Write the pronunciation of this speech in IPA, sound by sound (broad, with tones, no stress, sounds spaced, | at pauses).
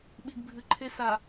ɓ i˨ ɡ bʱ ɨ˨ ǃʰ e˦ s a˨